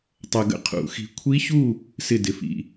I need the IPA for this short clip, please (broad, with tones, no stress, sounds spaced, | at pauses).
tˤ ɐ˧ ɡ ə̰˥˨ qʰ ṵ˨˩˦ x i̤˧ kʷʰ i˦˥ ç u˥˨ | s ɪ˥˨ d ɪ˩˧˩ f ḭ˥˨